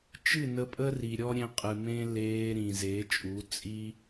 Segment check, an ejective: present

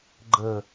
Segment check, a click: present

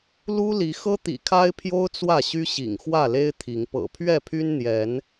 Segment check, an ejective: absent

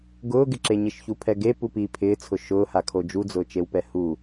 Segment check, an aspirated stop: present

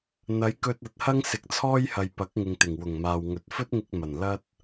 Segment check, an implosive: absent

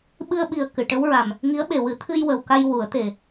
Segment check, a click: absent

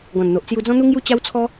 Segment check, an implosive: absent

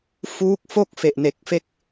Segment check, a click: absent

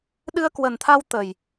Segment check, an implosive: present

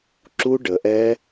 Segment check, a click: present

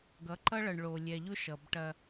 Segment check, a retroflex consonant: present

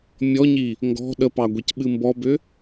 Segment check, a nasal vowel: absent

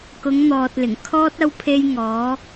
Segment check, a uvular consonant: absent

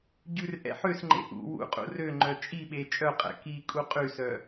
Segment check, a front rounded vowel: present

